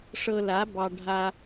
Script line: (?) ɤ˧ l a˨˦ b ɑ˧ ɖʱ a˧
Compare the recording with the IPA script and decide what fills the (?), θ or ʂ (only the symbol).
ʂ